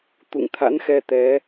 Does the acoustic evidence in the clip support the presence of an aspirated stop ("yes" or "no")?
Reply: yes